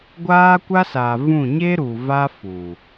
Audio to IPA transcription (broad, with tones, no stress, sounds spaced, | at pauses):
ɡʷ aː˦ kʷ a˦ s aː˨ v ũ˦˨ ɲ e˦ ɾ u˨ v a˦ f u˨